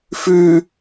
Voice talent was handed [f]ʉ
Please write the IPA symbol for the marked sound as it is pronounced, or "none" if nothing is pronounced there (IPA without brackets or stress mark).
f